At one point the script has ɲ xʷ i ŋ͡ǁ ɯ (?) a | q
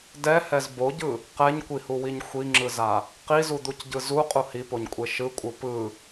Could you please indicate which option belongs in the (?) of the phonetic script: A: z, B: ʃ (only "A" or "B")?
A